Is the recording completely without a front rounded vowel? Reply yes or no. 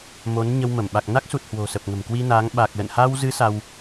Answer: yes